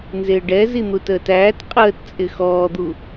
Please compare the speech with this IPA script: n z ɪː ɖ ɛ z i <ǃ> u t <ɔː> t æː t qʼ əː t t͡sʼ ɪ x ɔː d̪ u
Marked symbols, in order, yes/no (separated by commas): no, no